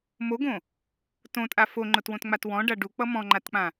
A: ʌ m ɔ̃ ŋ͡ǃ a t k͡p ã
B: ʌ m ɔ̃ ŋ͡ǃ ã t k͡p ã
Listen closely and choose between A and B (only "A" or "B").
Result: A